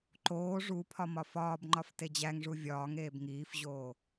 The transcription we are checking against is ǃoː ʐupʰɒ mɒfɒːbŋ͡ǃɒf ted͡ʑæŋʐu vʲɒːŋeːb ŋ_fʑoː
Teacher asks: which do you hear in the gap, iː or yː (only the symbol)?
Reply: iː